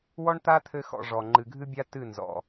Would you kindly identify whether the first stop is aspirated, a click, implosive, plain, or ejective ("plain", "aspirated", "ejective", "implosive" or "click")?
plain